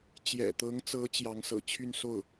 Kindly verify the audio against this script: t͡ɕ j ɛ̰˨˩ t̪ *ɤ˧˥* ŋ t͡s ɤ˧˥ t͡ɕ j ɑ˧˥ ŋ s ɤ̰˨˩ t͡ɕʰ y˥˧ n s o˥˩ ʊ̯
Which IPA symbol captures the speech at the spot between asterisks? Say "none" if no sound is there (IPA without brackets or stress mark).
ɤ˧˥